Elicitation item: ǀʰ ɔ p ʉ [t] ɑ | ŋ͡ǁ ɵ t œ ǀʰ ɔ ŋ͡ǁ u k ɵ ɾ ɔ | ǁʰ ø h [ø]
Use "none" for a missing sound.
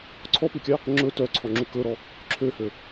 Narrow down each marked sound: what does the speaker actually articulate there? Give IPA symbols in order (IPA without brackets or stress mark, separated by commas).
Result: kʲ, ø